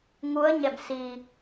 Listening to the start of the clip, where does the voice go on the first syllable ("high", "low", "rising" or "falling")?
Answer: rising